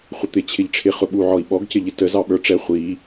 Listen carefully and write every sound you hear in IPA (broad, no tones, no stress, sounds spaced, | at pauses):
χʷ ə t̪ ɪ t͡ɕʰ ɪ ʎ ʈ͡ʂʰ ɪ χ ʊ ɓ u ʕ ɔ i̯ ɓ ɔ ɡ c ɪ ʎ ɪ t ə z ɑ ɓ ə˞ ʈ͡ʂ ɛ χʷ i